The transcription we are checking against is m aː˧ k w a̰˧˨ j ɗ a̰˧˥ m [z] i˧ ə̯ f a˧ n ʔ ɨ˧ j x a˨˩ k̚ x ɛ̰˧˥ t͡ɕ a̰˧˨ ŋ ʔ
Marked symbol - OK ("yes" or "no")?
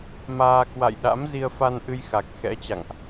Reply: yes